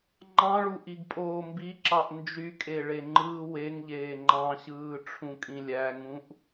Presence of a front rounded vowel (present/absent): present